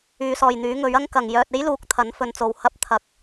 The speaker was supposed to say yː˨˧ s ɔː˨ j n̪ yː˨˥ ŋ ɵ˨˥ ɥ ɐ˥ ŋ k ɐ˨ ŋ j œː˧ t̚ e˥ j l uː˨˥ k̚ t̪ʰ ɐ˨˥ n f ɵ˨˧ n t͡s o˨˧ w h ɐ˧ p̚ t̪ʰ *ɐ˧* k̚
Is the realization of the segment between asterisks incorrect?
yes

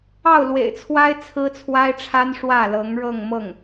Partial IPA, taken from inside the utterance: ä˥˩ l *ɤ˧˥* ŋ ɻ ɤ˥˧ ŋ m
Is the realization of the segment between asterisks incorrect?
no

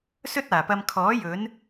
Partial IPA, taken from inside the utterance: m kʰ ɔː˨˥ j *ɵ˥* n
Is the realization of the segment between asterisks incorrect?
yes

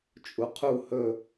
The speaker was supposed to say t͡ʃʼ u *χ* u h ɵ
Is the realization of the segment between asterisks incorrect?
yes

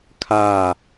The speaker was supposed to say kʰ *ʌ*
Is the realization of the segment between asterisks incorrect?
yes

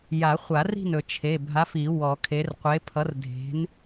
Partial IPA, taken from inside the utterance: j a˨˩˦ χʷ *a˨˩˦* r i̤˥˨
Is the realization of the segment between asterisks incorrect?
no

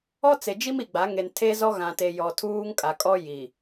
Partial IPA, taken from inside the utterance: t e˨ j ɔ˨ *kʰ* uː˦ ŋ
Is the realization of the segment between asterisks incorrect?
yes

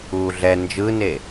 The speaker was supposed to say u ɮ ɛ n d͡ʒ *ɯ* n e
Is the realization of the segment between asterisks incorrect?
no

